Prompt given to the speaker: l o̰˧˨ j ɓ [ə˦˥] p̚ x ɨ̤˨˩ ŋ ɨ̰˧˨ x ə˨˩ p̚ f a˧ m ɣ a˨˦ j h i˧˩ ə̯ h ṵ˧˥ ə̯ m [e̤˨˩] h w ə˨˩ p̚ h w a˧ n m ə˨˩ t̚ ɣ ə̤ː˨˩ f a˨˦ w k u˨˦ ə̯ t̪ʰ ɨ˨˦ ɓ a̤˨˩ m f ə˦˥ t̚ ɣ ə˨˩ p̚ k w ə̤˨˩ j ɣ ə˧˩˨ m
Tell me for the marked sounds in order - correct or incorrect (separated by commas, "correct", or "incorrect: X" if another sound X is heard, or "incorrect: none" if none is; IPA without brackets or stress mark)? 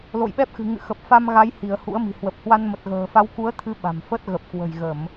incorrect: ɛ˦˥, incorrect: i̤˨˩